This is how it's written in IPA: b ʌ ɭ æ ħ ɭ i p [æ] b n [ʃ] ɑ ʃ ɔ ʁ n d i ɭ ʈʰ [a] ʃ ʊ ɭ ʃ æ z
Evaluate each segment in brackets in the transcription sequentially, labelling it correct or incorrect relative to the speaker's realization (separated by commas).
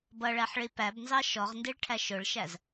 correct, incorrect, incorrect